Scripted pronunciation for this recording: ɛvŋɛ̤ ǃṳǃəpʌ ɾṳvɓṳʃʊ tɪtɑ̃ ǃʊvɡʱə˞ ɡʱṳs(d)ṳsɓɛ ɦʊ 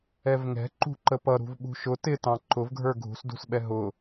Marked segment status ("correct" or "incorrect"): correct